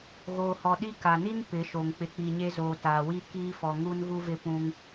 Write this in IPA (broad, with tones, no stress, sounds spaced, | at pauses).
ɣ oː˨ h ɔ˨ ɗ i˦ k a˨ n i˦ n p ɪ˨˦ ʃ o˨ ŋ k͡p ɪ˨ k͡p i˨ ɲ e˦ z oː˨ t aː˨ w i˦ k iː˦ f ɔ˨ ŋ u˦ n ɣ u˦ v ɪ˦ p ũ˦ ŋ